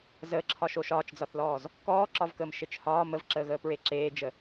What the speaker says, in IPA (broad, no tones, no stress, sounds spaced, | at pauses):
z əː ǁʰ ɒ ʃ o ʃ ɒː t͡ʃ d͡z ɒ θ l ɔː z | k ɔː ǁ ɒ v k əː m ʃ e t͡ʃ h ɒː m ə v ǁ əː ɣ əː p ɹ e ǁ eː d͡ʒ ə